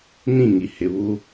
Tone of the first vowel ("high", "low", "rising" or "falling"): falling